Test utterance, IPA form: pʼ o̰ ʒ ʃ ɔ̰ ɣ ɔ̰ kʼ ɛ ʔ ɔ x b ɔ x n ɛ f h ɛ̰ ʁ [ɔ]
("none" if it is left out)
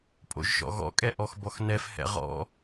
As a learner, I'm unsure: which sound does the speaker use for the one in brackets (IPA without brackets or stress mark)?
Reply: ɔ̰